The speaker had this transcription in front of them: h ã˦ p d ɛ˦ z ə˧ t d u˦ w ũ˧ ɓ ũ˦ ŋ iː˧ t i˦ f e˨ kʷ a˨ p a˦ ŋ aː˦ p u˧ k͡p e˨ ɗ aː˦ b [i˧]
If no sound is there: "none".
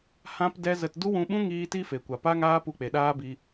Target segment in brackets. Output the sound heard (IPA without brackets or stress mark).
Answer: i˧